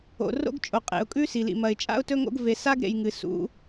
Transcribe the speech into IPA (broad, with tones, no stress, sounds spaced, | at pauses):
o̰˨ r o̰˦ ɡ t͡ʃʼ o˨ qʼ ḛ˨ ʊ̯ kʼ ʉ˦ s i˨ l ḭ˨ m ɐ˨ ɪ̯ t͡ʃʼ a̰˦ ʊ̯ t ɵ˦ ŋ o̰˦ ɡ v e˨ s a˦ ɡ ɾ ḛ˨ j ŋ ɨ˨ s ṵ˨˦